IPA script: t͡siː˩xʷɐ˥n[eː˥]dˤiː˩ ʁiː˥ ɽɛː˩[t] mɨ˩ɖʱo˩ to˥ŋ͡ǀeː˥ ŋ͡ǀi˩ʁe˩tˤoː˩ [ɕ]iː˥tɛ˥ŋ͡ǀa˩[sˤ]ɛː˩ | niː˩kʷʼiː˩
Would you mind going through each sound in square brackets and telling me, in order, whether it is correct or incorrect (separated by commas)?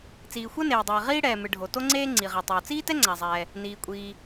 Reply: incorrect, incorrect, incorrect, incorrect